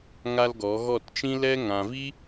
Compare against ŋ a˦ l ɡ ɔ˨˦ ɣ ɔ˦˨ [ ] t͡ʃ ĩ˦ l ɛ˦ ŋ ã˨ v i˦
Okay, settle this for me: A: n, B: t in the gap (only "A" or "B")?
B